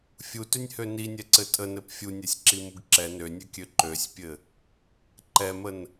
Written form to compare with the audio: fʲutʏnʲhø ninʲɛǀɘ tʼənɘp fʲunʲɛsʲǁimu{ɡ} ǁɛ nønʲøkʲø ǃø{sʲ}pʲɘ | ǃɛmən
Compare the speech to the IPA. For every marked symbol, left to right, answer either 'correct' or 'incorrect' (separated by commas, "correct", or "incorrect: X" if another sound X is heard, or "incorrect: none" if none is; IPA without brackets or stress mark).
correct, correct